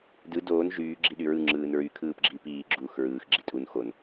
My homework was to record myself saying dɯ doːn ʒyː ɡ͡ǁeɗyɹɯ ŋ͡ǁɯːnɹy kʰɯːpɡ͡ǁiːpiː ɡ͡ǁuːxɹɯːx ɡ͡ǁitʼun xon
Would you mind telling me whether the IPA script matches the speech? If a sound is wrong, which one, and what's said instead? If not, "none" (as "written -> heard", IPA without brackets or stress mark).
e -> i